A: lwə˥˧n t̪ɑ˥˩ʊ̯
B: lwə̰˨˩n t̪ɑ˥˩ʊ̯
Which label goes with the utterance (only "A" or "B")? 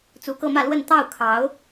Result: A